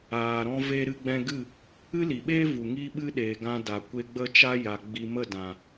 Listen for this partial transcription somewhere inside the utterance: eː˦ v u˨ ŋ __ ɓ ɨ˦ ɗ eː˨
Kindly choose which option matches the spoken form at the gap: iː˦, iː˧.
iː˦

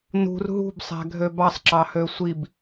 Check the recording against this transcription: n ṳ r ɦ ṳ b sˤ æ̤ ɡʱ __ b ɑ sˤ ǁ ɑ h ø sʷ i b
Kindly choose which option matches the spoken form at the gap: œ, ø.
ø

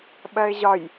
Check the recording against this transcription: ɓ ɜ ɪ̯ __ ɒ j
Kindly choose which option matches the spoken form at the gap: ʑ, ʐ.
ʑ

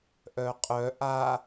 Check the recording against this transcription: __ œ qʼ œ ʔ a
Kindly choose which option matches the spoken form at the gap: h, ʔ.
ʔ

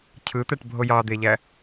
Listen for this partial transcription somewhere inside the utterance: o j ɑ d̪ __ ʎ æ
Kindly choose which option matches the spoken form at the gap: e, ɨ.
e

